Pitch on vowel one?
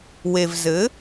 low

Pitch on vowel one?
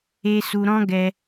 high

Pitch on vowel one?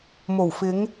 low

